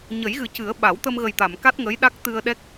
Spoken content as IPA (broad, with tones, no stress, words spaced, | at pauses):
ɲə˨˩˦jɣɨ˨˩cɨ˨˩˦ə̯ ɓa˨˩˦wt̪ə˧m ɣə˨˩jt̪a˨˩˨mka˦˥t̚ ŋə˧˥jɗa˦˥k̚t̪ɨ˧ə̯ɗɛ˦˥k̚